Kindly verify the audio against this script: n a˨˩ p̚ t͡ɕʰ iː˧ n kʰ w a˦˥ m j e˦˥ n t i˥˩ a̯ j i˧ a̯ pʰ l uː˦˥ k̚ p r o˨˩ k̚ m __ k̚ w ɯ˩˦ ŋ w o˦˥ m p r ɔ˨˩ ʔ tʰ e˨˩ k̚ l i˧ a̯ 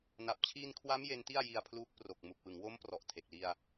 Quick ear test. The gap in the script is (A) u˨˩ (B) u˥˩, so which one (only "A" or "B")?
A